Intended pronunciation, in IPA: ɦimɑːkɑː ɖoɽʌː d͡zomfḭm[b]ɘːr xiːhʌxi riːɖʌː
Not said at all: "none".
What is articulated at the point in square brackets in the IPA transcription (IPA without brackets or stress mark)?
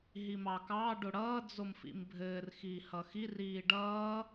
bʱ